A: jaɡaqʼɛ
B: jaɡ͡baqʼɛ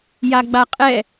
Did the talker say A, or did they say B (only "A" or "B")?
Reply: B